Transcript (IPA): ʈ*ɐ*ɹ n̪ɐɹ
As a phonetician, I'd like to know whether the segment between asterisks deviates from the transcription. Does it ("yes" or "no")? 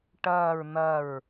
yes